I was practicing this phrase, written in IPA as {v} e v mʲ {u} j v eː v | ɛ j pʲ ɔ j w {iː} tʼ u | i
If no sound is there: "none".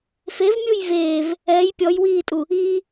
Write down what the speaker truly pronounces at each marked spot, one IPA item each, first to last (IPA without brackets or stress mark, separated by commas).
f, u, iː